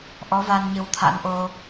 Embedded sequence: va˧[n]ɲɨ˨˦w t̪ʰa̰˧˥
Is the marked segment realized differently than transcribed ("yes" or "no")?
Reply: no